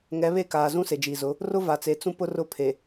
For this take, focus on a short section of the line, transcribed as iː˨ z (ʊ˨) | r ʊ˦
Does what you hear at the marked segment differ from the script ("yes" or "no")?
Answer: yes